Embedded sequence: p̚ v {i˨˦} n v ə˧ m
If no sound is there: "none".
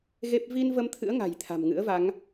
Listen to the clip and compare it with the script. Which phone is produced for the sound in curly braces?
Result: i˧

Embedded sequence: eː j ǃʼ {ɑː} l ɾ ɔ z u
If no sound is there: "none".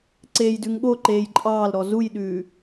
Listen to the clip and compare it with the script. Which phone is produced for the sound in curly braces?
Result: ɑː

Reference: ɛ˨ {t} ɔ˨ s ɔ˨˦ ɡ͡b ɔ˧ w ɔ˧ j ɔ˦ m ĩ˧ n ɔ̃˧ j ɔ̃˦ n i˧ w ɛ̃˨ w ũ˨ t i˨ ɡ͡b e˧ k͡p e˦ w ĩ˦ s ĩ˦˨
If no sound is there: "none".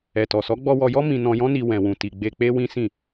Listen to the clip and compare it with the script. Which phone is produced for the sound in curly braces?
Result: t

